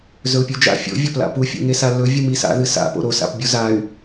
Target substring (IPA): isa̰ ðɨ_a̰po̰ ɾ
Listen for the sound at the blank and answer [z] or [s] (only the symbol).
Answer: s